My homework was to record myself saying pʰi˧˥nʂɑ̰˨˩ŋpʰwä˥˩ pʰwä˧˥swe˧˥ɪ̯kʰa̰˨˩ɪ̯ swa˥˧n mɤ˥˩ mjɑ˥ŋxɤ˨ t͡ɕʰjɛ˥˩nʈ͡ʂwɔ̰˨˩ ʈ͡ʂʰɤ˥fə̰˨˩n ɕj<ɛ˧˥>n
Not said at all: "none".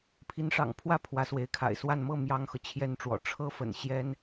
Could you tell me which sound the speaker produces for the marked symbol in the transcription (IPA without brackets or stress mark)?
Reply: ɛ˥